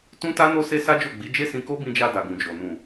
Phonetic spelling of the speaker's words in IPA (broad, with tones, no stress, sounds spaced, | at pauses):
t ũ˦ t a˦ n o˦ s e˦ s a˦ d͡ʒ o˦˨ ɡ͡b i˨˦ d͡ʒ e˦ s ĩ˧ k o˦ b ĩ˧ d͡ʒ a˧ d a˨ ɡ ũ˨ d͡ʒ o˨ n ũ˨